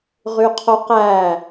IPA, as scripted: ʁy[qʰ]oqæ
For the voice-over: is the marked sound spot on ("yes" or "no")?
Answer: yes